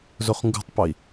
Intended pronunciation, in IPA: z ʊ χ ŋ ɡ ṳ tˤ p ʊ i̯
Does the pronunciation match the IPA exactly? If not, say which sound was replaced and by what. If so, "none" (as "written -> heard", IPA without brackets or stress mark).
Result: none